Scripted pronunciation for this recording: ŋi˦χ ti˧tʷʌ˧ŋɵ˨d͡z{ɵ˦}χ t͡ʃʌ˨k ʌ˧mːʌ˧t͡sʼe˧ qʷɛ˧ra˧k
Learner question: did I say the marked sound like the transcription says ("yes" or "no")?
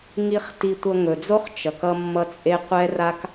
no